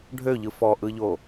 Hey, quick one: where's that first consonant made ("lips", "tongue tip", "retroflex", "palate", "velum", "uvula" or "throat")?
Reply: retroflex